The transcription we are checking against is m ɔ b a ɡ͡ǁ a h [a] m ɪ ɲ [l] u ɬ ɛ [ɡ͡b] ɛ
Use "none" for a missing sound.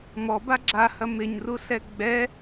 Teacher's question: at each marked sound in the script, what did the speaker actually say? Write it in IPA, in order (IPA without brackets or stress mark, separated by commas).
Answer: ɐ, r, ɡ͡b